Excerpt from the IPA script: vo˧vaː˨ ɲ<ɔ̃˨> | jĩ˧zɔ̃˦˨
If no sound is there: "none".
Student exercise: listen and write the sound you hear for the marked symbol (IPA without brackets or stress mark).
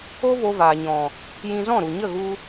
ɔ̃˨